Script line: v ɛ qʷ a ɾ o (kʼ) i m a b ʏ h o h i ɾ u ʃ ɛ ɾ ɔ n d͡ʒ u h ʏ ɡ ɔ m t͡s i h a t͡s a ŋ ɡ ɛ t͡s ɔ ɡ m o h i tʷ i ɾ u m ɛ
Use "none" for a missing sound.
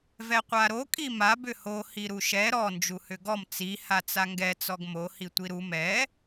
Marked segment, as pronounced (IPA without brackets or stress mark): kʼ